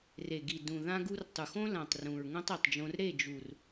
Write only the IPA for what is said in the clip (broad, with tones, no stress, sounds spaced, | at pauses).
r e˨ ɡ i˨ d ũ˨ ð ã˦ ɡ u˦ r tˤ u˨ x õ˦ l ã˨ tˤ r ũ˨ ɹ ŋ õ˦ tˤ i˨ tˤ d͡ʒ õ˧ r ɾ e˦˨ d͡ʒ u˨ r